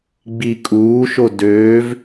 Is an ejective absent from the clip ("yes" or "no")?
no